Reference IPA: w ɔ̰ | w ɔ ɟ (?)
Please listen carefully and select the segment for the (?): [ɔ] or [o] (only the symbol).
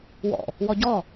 ɔ